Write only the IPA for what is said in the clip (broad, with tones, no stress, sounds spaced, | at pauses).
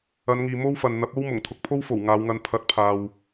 ɐ˨˧ n ŋ iː˨ m o˥ w f ɐ˨ n n̪ ɐ˨˥ p̚ o˥ w m ʊ˨˩ ŋ t̪ʰ ʊ˨ k̚ pʰ o˥ w f o˨˩ w ŋ aː˨˧ w ŋ ɐ˧ n pʰ ɐ˨˥ t̚ pʰ aː˨ w